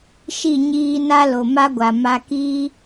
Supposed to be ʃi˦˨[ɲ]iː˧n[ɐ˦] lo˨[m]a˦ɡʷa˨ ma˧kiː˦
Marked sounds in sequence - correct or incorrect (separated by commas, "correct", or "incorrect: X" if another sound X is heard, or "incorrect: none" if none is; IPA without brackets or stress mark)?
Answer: correct, incorrect: a˦, correct